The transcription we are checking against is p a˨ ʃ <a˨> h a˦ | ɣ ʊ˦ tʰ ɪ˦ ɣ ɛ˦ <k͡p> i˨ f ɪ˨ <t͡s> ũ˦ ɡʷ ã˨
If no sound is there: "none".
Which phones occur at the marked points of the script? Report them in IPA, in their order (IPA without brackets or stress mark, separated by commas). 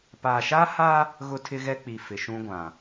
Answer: a˦, k͡p, ʃ